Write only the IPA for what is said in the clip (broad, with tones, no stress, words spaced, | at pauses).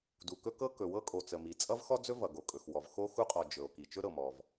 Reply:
du˩kɵ˥ kɤ˥kɵ˩wɤ˥kʼo˩ t͡sə˩mi˩ t͡sʼʌ˥vxɔ˥d͡zɵ˥ vʌ˩ ɡo˩kʼɵ˩xwɔ˩v xo˥ xu˥qʼɔ˩ d͡ʒɵ˩o̯ ki˩t͡ʃɵ˥ɾɤ˩mɔ˩v